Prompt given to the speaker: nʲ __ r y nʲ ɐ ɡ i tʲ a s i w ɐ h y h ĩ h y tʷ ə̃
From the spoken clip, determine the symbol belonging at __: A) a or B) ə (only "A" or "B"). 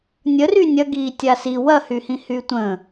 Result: B